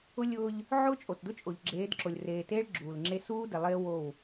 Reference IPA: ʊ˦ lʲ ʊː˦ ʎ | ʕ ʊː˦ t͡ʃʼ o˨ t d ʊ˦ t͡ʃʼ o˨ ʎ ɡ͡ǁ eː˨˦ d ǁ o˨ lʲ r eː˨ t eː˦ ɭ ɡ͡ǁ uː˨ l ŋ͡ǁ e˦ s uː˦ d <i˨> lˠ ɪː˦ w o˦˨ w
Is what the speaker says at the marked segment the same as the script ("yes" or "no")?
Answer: no